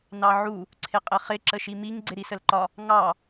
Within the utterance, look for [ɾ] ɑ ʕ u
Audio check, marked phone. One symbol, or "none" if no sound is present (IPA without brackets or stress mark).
n